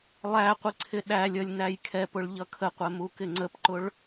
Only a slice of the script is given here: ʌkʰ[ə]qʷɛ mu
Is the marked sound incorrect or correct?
correct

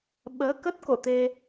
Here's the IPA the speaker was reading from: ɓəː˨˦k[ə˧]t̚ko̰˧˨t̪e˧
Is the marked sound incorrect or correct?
incorrect: ə˦˥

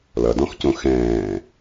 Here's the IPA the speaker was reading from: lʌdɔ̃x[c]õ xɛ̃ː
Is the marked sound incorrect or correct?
correct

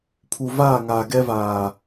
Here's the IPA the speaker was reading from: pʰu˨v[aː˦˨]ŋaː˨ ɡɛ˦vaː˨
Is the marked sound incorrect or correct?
correct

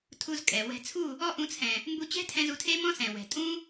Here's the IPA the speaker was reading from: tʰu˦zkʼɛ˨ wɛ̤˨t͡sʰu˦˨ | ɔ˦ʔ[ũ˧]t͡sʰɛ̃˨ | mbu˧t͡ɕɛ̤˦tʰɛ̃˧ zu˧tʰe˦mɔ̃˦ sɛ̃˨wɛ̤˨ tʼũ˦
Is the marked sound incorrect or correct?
correct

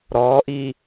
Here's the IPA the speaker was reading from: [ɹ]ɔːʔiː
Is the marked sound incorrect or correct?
incorrect: ɾ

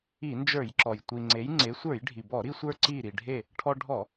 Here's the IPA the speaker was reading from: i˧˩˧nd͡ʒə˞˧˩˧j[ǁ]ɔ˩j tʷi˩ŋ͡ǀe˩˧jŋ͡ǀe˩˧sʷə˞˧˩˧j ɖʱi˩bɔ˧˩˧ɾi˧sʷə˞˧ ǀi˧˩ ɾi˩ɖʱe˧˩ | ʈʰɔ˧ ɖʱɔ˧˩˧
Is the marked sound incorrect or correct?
correct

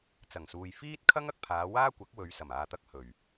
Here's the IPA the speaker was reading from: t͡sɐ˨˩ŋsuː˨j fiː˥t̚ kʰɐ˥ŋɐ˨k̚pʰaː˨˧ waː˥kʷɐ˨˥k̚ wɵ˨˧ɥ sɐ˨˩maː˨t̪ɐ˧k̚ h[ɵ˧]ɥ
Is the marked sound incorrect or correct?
incorrect: ɵ˨˩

